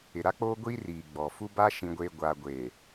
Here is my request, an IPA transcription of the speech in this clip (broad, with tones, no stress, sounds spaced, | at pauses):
ɪ˨ ɾ a˦ k͡p oː˦ ɡʷ iː˦ r iː˨ ɡ͡b ɔ˨ f u˦ b a˦ ʃ ĩ˨ ɡʷ e˨ ɡʷ aː˨ ɡʷ eː˨